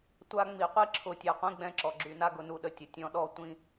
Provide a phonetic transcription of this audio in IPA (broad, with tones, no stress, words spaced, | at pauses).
tʷa˦ŋ͡mi˨ qʷi˦ǁʰʊ˨ tʲa˨qʷĩ˦ɡ͡bɛ̃˦ ǁɔ˨ ɡ͡ǁy˨na˦ɡʊ˨ nu˦ɗə˨tʲʊ˨tʲɔ̃˦ ɗɔ˦ tʷĩ˦